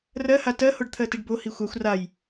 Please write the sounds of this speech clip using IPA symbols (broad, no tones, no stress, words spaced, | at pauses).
rɜha tɜhoɖ t̪ʰɜtiɖbo hixʷaxʷ raj